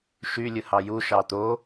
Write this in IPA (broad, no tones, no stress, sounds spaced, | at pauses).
ʃ y lʲ ɯ h ɑ j u ʃ ɑ t̪ o